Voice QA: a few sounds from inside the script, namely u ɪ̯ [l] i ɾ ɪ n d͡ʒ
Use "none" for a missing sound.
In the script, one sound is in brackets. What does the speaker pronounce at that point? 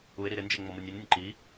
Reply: ɾ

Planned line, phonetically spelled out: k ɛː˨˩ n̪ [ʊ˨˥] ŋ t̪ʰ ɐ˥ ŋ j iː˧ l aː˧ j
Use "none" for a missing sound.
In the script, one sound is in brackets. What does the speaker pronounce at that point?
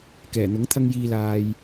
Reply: ʊ˨˥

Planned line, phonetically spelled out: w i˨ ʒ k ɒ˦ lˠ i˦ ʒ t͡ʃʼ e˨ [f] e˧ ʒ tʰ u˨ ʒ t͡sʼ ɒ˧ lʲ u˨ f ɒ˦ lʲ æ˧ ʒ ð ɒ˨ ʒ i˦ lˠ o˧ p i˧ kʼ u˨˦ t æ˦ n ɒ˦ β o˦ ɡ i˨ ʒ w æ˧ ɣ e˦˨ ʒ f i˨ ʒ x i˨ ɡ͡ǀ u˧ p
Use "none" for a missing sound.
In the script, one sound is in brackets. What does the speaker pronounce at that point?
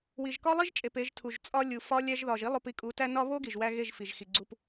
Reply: p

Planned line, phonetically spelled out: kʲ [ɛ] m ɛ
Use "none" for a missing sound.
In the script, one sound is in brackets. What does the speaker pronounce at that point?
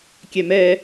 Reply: ɛ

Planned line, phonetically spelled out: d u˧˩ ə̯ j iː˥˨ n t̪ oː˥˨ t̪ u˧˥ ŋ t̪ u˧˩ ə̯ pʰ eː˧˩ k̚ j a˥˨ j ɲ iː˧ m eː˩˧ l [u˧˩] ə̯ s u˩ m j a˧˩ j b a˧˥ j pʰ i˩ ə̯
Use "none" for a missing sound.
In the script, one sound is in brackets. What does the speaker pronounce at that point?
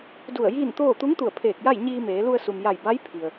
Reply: u˧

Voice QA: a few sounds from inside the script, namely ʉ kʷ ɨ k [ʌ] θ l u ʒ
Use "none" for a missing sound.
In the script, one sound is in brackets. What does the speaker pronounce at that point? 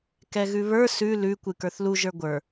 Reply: ə˞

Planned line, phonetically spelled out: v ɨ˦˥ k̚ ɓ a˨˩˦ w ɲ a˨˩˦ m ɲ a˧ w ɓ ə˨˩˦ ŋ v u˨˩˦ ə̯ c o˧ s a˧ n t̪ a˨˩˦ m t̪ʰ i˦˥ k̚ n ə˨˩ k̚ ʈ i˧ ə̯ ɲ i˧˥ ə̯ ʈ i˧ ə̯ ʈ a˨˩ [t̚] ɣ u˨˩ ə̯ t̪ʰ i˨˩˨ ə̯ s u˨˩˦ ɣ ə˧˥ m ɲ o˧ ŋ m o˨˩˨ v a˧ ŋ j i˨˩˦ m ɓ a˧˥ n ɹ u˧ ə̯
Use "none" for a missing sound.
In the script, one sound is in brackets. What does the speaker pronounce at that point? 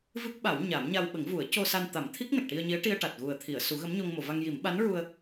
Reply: t̚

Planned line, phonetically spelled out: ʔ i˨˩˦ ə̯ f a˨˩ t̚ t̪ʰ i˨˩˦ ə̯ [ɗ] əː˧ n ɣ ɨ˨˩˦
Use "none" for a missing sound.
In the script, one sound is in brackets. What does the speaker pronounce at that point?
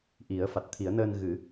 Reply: n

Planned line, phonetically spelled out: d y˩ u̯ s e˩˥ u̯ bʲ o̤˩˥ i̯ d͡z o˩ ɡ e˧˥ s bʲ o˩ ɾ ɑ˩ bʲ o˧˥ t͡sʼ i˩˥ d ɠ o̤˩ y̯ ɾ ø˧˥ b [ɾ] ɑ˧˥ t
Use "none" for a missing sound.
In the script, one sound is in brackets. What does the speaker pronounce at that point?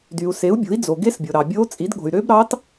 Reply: ɾ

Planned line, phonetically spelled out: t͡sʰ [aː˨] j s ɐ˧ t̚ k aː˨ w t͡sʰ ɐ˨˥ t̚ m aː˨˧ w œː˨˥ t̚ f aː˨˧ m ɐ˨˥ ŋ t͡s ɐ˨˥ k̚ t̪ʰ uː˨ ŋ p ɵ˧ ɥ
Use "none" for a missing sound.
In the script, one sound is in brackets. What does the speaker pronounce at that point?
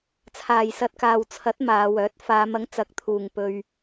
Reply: aː˨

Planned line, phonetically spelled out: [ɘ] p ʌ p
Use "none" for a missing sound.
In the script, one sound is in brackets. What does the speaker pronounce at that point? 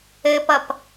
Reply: ɘ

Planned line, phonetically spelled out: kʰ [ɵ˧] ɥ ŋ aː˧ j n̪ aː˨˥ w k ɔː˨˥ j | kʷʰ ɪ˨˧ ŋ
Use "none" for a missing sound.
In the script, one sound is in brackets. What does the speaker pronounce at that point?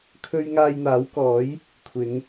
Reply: ɵ˥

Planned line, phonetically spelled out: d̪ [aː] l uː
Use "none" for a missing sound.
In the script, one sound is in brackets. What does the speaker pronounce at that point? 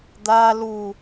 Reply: aː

